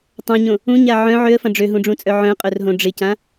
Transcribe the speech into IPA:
tˤ ɐ̃ ɲ õ | ũ ɲ a ʕ œ̃ ʕ ø ə̯ f ɐ̃ ɖ͡ʐ ø ɦ ũ ɖ͡ʐ ũ t͡sʼ œ ʕ œ̃ qʼ œ r ɦ õ ɖ͡ʐ ɪ c ã

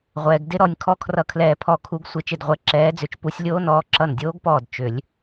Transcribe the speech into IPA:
ʁʷ ɛː˩ ɡ d ɪ˨˦ ɾ ɔ˩ nʲ kʰ ɔ˦˥ kʰ r ʌ˧˩ kʰ l ɛː˧˩ pʰ ɔ˧˩ kʰ u˨˦ ɡ sʷ ɪ˨˩˦ t͡ʃ ɪ˧˩ d ʁʷ ɛ˨˦ ǁ ɛː˨˦ d͡z ʏ˨˦ t͡ʃ p u˨˦ sʲ lʲ oː˦˥ n ɔː˨˦ ǁ ʌ˧˩ n dʲ oː˦˥ ɡ p ɔː˧˩ d t͡ʃ ʏ˨˩˦ lʲ

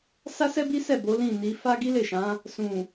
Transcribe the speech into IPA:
s a˦ s ɛ˦ b i˦ s ɛ˦˨ b o˨˦ l ĩ˦˨ n i˨˦ f a˦ ɡ i˦ l e˦˨ ʃ ã˨˦ | s ũ˨

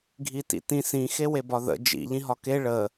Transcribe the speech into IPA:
ɡʱ i t ḭ t ĩ s ĩ x e w e b ɒ ð ə̰ d͡ʒ ḭ ʎ ĩ ɦ ɒ k e ɭ ə

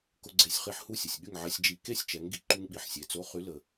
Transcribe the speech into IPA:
k ʊ˧ ɡ͡ǀ e˧˩˧ sʲ χ i˧ ħ h u˥˨ sʲ ə˩ sʲ ɠ y˥˨ ŋ ʕ ɛ˧ sʲ d͡ʒ i˧˩˧ k e˥˨ sʲ t͡ʃ ɛ˩˧ ŋ ɡ i˩ ǃ u˧ ŋ ɓ i˩ ħ sʲ e˩˧ t͡s o˨˥ χ y˨˥ l ə˩

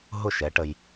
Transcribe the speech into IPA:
ɦ ʊ˦˨ ʃ ɛ˨˦ ʈ ə˧ j

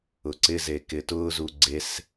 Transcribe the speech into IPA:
ʊ ǀ ɪ z e k ɪ t ʊː z u ɡ͡ǀ e s

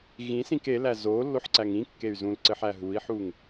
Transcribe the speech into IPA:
ɣ ĩ s ĩ k e l æ z o lː o ħ ǀ æ ŋ ĩ kː e y̯ z ũ l ǀ ɘ ħ æ ɦ u i̯ ħ u ŋ

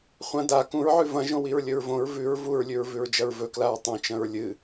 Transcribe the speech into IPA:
χʷ ɐ̃ d a k ũ ɹ ʕ ʉ v ɐ̃ ʒ õ w i ɹ lʲ ɵ ɹ v õ ɹ v ʉ ɹ v u ɹ lʲ ʉ ɹ v ʉ ɹ d͡ʒ ɐ ɹ v ɵ k l a ɹ tˤ õ t͡ʃ ɐ̃ ɹ lʲ ɨ

